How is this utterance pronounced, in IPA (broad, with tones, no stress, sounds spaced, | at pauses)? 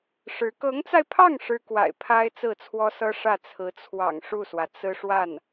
ʂ ɻ̩˧˥ k ɤ˧˥ ŋ t͡s a˧ ɪ̯ pʰ ɑ˥˩ ŋ ʂ ɻ̩˥ k w a̰˨˩ ɪ̯ pʰ a˥ ɪ̯ t͡s ɹ̩˥˩ t͡sʰ w ɔ˥ s ɤ˥ ʂ ä˥˩ t͡sʰ ɹ̩˧˥ t͡sʰ w ɑ̰˨˩ ŋ ʂ u˥˩ s w ä˩ t͡s ɹ̩˥ ʂ w a˥˩ n